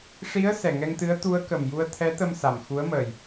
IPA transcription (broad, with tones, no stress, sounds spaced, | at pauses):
ʂ i˧˥ ə̯ s ɛ˨˩ ŋ ɛ˧ ŋ t̪ ɨ˧˥ ə̯ t̪ u˧˥ ə̯ k ə˨˩ m j u˧ ə̯ t̪ʰ ɛ˧˥ t̪ ə˧ m s a˨˩ m x u˧˥ ə̯ m əː˨˩ j